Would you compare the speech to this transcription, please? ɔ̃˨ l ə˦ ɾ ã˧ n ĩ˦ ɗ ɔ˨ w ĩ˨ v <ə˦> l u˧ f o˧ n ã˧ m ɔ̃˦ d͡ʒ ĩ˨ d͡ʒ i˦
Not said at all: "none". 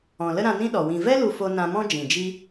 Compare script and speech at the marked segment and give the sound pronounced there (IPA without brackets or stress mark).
ɛ˦